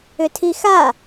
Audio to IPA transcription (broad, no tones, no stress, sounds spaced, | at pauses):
ʏ tʰ i x a